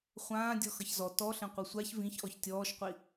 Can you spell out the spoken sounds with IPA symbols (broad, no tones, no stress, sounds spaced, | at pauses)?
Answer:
χʷ ãː dʲ ɔ x ʌ ç z ɔ t ɔ ɬ ẽ qʷ a sʷ a ç v ĩ ç ʔ ɔ ç tʲ ɔː ʃ qʷ i